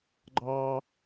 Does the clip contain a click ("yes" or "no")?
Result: yes